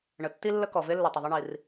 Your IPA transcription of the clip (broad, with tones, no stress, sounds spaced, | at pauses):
ɳ ə˩ tː i˥ lː ə˥ k ɔ˩ v e˥ lː ʊ˩ tˤ ʊ˩ ðˤ ɘ˥ ɳ i˩ r